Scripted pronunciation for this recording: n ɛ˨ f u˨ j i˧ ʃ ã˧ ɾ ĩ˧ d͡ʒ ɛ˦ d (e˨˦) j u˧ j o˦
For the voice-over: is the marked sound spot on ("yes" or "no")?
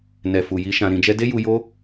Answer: no